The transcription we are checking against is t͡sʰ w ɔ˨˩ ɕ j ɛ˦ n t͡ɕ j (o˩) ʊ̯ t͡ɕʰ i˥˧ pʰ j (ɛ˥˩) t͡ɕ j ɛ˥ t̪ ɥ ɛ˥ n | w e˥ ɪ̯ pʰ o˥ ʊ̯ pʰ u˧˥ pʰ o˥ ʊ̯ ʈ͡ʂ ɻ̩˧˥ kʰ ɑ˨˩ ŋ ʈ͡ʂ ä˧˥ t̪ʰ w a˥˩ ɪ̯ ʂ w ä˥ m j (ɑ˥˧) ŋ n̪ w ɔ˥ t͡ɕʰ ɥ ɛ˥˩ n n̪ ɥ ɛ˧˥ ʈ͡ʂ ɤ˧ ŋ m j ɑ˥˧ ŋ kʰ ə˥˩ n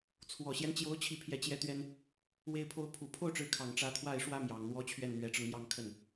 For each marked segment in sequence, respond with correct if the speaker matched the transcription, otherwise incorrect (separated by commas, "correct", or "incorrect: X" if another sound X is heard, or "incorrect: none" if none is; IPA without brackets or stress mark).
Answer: incorrect: o˧˥, correct, incorrect: ɑ˨˩